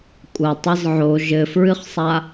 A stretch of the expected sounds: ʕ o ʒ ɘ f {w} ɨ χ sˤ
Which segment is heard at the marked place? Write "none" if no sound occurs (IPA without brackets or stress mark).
ɹ